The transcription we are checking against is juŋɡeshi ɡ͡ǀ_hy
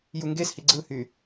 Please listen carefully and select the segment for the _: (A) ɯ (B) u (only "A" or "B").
A